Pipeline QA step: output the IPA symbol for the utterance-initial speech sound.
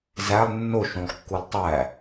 z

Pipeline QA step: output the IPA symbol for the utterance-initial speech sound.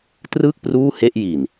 t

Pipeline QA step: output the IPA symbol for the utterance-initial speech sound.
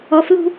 ɔ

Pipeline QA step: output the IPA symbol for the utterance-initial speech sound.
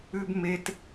ʉ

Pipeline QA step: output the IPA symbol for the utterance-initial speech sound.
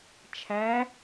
t͡ʃʰ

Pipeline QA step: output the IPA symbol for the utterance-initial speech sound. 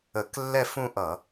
ə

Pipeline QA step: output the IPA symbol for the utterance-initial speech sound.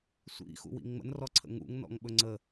sʷ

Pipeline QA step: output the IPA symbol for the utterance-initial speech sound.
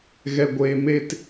ɣ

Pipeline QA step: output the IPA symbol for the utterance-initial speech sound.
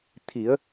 t̪ʰ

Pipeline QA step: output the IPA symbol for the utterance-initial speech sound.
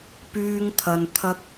p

